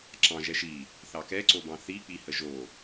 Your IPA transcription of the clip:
ǁ ɑ̃ ʒ ɛ ʃ i | θ ɑ k ɛ ǀ o b ɑ̃ θ i k͡p i h ə ʒ o

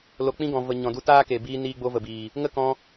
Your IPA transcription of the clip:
l o˨ k͡p ĩ˧ ɡ ɔ̃˨ v ə˨ ɲ ɔ̃˨ d u˧ t aː˦ k e˨ b iː˧ n iː˧ ɡ͡b o˧ v ə˨ b iː˨ | ŋ ə˦ k ɔ̃˧

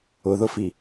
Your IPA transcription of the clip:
ʊ ð ʊ f i

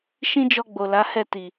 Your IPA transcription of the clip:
ʃ ĩ˦ d͡ʒ ɔ˧ ɡ͡b o˨ l a˨˦ h ɛ˦˨ t i˨

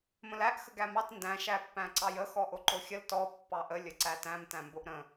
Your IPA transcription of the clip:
m ə̃ l æ ʔ x ə ɡ æ m ɑ t n d æ̃ ʃ æ pː æ̃ ǀ ɑ j ə x ɔ ʔ o ǃ o xʲ ə l t ɔ pː ɑ ʔ ə lʲ ə ǀ æ t æ̃ m t æ̃ m b o ʔ ɾ ə̃

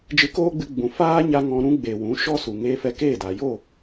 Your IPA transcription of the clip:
d͡ʒ ɨ˧ k oː˦ ɡ͡b ɨ˧ ɡ͡b ũ˨ f aː˦ ɲ a˧ ŋ ɔ̃˧ ɾ ũ˧ ɡ͡b e˨ w ũ˨˦ ʃ ɔ˦ s u˨ ŋ eː˧ f ɛ˧ k eː˦˨ d aː˨ j o˦˨

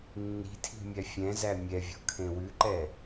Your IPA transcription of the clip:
nː i̤ tʰ i̤ mʲ æ fʲ ɛ̃ z æ mʲ ɛ vʲ ɔ̤ kʰ ẽ w ʉ ǃ ɛ

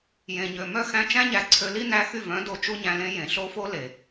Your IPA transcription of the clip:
j ẽ˨ ɲ ø˨ m œ˦˨ x æ̃˧ t͡ʃ æ̃˦ ɲ æ˨ ǀʰ ø˧ l i˦ n æ˧ x y˦˨ v œ̃˨˦ d o˧ t͡ʃ u˦ ɲ æ̃˧ l ẽ˦ j ẽ˨ ɬ o˦ f o˦ l e˨

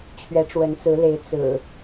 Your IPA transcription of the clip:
t͡ɕʰ ɥ ɛ˨˦ ʈ͡ʂ w ə˨˦ n t͡s ɹ̩˨˦ l e˨˦ ɪ̯ t͡s ɹ̩˨˩

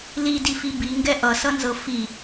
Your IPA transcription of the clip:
l i d i f i b i ŋ ɡ ɛ ʔ ʌ s ʌ n z ɤ f i

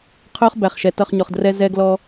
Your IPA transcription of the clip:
qʰ ʊː˦ χ b æ˨ χ ʃ ɛ˨ t ʌ˦˨ χ ɲ ɔ˨ χ d r ɛ˦ z ɛ˦ ɡ l ɔ˦

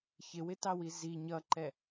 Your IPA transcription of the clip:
ç ɪ w ɪ t ɑ w i z i ɲ ʌ ǃ ɛ

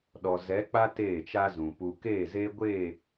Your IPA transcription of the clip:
ɗ ɔ˨ z ɛ˨˦ k͡p a˦ t eː˦˨ t͡ʃ a˦ z ũ˨ p u˨ k eː˦˨ z eː˦ ɡʷ eː˦˨

